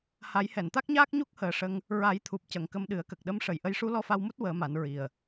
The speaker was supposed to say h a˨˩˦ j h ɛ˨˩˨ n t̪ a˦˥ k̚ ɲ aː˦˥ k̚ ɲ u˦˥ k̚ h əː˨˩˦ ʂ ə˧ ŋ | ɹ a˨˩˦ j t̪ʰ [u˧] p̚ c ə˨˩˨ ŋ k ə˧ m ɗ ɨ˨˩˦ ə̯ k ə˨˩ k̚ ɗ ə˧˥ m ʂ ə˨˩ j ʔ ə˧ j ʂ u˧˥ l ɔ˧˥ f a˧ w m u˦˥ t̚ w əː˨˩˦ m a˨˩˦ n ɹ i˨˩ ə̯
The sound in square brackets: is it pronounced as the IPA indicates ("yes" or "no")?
no